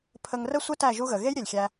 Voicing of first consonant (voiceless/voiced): voiceless